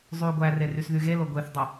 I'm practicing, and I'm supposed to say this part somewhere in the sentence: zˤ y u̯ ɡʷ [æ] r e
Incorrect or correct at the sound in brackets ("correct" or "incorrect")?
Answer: correct